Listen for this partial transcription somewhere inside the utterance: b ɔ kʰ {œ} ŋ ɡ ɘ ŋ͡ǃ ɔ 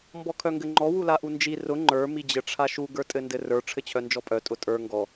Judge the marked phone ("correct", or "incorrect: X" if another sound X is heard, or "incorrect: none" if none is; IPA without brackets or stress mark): correct